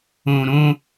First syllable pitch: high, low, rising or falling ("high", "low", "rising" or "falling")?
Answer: low